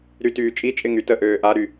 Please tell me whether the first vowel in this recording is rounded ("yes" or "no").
yes